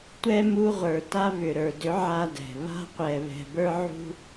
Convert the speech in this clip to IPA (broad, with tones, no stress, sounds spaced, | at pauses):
tʷ ɛ˦ m u˧ ʁʷ ə˞˨ t a˧ β ʏ˨ ɾ ə˞˨ d ʏ˨˦ ʕ a˦ d ɛ̤˨ β a̤˧ qʷ ɛ˨ β ɛ̤˨ b ə˞˧ ʕ ṳ˧